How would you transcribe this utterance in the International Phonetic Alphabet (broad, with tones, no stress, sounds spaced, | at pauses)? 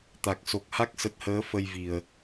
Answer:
t̪ a˨˩ k̚ s o˨˩ k̚ h a˦˥ k̚ s ə˨˩ t̚ h əː˨˦ f ə˧ j v i˨˩ ə̯